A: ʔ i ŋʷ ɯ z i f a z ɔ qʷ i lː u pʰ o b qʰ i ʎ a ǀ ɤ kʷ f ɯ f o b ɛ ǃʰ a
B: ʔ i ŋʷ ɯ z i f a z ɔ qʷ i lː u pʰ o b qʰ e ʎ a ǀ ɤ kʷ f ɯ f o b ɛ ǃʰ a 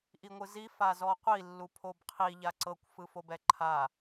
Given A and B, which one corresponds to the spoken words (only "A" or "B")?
A